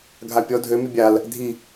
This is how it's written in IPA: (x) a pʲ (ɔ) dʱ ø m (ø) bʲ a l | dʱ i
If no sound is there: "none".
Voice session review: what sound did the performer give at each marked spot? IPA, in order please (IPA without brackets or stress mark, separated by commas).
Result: ɡʱ, ɔ, y